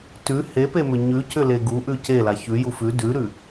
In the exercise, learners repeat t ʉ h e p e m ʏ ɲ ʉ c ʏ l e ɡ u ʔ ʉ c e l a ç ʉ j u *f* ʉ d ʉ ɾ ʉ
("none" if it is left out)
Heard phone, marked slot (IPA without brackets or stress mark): f